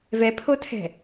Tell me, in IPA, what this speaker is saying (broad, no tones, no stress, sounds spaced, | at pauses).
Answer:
v ɛ pʰ o tʰ ɛ̤